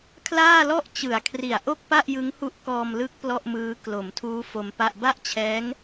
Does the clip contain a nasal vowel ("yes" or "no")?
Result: no